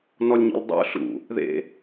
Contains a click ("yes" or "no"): no